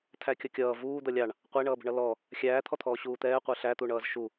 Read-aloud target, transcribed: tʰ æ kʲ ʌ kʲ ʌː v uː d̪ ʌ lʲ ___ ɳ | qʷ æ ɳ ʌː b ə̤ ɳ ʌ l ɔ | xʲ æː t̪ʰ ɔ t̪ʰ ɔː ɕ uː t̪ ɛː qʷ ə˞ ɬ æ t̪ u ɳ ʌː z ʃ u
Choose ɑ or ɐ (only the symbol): ɑ